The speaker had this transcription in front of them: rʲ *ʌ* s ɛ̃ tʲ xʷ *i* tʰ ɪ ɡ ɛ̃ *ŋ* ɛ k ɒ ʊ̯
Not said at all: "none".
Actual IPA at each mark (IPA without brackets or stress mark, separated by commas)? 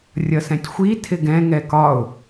ʌ, i, ŋ